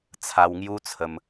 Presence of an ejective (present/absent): absent